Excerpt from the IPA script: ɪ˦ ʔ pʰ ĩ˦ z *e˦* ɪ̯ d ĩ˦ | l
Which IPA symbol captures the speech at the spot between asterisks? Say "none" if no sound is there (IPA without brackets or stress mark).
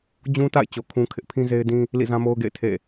e˦